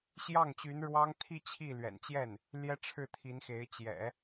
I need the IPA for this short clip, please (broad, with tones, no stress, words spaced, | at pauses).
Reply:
ɕjɑ˥˩ŋt͡ɕy˧˥n ɻwɑ˥ŋ t̪ʰi˥˧ t͡ɕʰi˥˩ lɥɛ̰˨˩nt͡ɕjɛ˥˩n | ljɛ˥ʈ͡ʂʰɻ̩˥˩t̪ʰi˧˥nxe˧˥ɪ̯ t͡ɕjɛ̰˨˩˦